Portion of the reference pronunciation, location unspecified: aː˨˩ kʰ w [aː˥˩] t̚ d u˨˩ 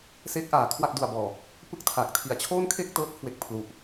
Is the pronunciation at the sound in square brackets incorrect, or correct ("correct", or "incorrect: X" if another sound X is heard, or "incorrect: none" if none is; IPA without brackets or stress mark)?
incorrect: a˥˩